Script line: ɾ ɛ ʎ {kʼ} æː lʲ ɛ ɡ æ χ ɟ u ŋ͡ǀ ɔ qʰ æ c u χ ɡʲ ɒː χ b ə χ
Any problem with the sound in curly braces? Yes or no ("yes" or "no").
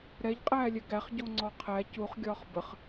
yes